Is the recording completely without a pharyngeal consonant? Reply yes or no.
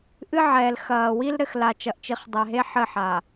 no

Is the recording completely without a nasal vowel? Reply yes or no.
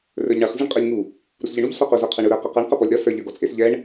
yes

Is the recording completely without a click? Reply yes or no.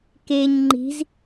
no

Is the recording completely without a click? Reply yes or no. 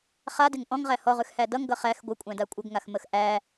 yes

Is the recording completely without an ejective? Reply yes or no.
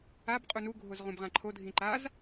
no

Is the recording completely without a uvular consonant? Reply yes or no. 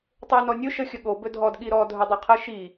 no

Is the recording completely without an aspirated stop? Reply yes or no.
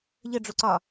yes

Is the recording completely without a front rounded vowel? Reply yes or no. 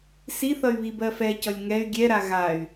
no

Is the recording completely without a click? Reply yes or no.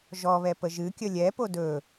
yes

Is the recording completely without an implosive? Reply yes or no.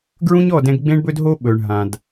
no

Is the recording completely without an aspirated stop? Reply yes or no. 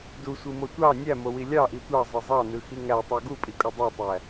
yes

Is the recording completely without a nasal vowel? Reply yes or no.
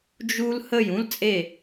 no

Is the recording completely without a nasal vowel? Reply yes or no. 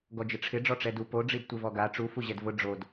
yes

